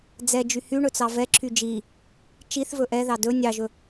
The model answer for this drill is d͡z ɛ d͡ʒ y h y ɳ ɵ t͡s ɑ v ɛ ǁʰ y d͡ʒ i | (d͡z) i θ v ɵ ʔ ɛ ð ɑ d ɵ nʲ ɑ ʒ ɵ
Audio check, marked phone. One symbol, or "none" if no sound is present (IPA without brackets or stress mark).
t͡ʃ